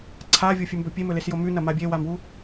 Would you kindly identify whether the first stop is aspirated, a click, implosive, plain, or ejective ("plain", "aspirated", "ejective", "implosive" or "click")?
click